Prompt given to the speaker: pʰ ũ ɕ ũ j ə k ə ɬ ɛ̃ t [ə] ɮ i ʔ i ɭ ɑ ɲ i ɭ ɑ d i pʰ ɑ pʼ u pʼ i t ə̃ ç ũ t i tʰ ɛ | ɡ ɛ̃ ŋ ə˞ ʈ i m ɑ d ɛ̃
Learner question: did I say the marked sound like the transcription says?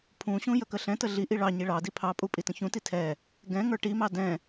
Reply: yes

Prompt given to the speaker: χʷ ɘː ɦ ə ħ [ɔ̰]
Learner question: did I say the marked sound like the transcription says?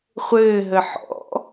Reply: yes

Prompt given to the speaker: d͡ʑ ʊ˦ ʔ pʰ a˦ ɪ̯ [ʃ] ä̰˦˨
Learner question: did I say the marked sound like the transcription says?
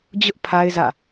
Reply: no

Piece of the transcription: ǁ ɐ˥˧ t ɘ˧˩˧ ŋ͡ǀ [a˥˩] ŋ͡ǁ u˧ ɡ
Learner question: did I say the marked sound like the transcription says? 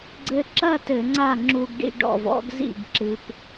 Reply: yes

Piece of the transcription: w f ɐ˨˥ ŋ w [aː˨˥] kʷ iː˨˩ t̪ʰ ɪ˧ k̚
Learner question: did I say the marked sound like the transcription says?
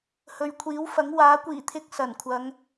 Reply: yes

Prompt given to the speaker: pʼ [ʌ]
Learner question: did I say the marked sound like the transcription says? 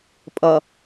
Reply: yes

